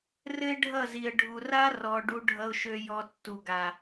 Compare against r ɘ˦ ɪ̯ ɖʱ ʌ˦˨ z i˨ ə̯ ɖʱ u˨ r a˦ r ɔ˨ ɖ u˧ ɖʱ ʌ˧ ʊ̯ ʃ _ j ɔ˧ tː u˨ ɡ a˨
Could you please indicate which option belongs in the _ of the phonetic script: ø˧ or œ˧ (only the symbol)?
ø˧